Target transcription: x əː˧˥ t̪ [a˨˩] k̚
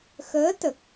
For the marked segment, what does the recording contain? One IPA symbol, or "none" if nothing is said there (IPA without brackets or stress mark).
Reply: ə˨˩